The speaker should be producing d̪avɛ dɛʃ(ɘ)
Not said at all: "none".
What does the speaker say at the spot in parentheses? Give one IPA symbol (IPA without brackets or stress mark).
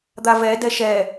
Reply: ɛ